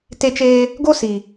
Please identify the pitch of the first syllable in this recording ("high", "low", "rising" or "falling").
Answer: high